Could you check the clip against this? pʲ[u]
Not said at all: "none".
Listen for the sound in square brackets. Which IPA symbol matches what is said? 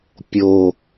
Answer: o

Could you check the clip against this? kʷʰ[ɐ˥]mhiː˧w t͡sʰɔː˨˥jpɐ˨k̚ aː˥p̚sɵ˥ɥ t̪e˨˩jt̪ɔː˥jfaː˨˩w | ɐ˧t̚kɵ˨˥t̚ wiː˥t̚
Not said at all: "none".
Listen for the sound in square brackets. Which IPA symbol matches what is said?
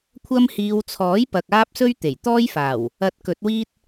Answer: ɐ˥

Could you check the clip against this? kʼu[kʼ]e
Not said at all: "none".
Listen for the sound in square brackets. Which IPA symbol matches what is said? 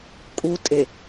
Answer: tʼ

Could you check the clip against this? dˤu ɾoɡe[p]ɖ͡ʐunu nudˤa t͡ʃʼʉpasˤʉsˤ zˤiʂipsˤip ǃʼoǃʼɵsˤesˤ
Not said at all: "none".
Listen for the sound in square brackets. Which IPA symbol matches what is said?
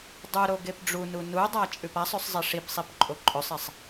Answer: p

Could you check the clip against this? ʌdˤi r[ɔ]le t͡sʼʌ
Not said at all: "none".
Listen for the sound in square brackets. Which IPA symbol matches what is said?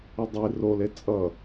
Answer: o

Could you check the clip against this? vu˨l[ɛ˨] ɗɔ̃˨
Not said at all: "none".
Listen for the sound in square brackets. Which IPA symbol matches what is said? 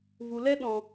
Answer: ɛ˦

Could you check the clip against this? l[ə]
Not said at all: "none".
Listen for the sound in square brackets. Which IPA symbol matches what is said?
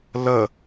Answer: ə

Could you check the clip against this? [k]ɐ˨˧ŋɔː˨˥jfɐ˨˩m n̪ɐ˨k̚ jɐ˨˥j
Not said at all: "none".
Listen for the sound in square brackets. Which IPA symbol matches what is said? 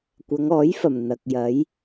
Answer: kʷ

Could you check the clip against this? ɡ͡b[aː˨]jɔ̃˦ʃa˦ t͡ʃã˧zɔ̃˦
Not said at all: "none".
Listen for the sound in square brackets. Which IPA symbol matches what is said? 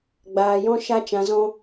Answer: aː˧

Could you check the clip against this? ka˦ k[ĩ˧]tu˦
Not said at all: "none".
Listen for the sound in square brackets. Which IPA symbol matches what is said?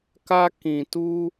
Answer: ĩ˧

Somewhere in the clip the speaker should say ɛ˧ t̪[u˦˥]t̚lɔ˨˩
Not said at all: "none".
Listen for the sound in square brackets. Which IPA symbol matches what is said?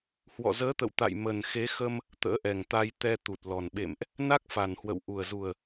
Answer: u˨˩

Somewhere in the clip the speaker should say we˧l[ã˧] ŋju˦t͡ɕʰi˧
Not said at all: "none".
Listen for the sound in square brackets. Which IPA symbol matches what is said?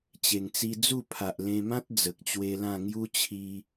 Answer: ã˥˧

